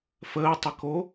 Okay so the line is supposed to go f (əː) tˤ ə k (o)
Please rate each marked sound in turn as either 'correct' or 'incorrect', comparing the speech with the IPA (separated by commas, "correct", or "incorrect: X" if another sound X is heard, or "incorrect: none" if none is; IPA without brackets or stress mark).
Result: correct, correct